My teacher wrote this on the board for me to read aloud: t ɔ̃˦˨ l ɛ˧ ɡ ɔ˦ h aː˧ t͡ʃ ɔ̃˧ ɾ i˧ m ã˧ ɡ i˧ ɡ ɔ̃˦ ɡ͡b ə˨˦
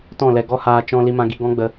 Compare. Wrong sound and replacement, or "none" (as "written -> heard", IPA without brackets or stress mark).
ɾ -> l